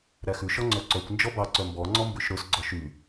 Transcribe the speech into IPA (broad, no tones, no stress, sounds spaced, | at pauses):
ɾ æ x ʉ ʃ ɔ ŋ͡ǀ œ ǀ œ kʷ n d͡ʒ ɔ b ɑ ǀ œ m b ɔ ŋ͡ǀ ɔ m b ʉ ʃ ɾ ɵ s ɡ͡ǀ ɔ ʃ y